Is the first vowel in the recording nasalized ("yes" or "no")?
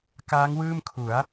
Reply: no